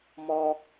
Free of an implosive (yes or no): yes